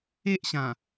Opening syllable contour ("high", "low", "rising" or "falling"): high